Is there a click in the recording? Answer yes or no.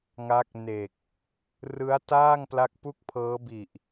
no